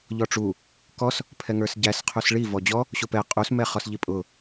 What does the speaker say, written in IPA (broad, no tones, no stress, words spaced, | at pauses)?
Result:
ʎɔʈ͡ʂu | kɔs | pʰɛŋə˞sɟæs qʰusɭi vɔd͡ʑɔ | ɕʊpɛ qʼus mɛχɔsʎipʼʊ